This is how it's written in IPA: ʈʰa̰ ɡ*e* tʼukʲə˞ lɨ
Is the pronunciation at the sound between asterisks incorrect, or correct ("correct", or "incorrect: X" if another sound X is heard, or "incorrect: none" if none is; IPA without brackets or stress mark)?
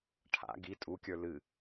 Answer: incorrect: i